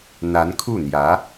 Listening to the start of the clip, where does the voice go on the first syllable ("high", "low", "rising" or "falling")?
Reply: rising